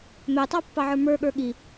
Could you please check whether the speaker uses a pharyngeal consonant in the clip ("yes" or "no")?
yes